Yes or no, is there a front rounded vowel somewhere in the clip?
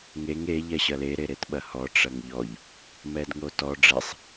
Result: no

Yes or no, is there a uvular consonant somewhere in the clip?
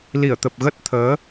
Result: no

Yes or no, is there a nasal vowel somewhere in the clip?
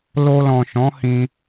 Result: yes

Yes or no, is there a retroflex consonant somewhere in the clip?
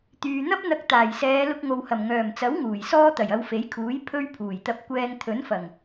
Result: no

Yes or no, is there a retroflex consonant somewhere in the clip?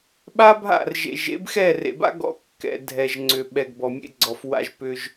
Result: no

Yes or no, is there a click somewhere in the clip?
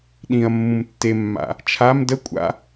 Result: no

